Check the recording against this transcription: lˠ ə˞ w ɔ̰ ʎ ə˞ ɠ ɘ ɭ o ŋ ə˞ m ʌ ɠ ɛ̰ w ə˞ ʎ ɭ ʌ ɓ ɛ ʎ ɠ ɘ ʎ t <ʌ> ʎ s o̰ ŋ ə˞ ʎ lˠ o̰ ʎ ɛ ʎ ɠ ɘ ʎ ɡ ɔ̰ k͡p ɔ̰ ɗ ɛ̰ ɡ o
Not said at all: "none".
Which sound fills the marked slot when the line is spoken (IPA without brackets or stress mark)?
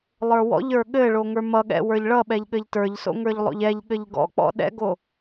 ə˞